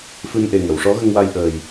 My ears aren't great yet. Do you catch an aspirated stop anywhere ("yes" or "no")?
no